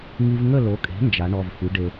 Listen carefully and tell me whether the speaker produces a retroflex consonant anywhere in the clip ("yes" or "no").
yes